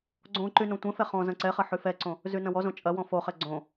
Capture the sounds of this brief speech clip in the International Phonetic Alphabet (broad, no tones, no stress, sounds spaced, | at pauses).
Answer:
ɡ͡ǀ õ ǃ y n õ tʷ ɛ̃ f ɛ χ ɔ̃ z ɐ̃ ǀ ɛ χ ɐ ħ y f ɛ ǀ õ | z y n ɐ̃ w ɔ z õ t͡ʃʼ ɐ w ɔ̃ f o χ ɛ ɡ͡ǀ õ